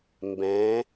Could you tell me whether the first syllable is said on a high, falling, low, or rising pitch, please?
rising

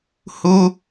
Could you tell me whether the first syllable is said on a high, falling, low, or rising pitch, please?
high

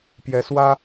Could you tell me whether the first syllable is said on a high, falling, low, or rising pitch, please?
rising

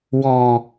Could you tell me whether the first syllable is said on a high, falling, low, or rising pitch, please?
low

